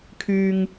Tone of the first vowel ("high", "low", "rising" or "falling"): low